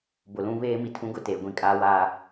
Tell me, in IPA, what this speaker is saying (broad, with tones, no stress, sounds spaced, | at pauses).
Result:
b ʊ˨ l ũ˦ β eː˦ m i˨ tʰ ũ˦ ɡ ʊ˦˨ t eː˨ ɡʷ ĩ˦ kʼ aː˦ w aː˦